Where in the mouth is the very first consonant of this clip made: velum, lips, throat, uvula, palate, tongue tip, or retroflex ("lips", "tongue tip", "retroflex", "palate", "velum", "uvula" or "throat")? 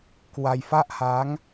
velum